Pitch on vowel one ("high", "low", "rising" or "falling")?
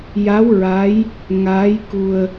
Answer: rising